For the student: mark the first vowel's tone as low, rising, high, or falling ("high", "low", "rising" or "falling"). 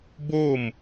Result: falling